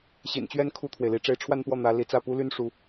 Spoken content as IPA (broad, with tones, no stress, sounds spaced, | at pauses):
ɕ ḭ˨˩ n t͡ɕ ɥ ɛ˥˧ n kʰ u˥˩ t̪ʰ w e˩ ɪ̯ l i˧˥ ʈ͡ʂ e˧˥ ɪ̯ ʈ͡ʂʰ w a˥˧ n p w ɔ˥˩ n̪ ä˧˥ l i˧˥ t͡s ä˥˩ p u˥ l y˥ n ʂ u˧˥